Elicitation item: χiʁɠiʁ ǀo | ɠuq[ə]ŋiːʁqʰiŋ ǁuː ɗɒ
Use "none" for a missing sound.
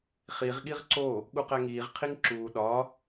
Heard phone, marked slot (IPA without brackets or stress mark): æ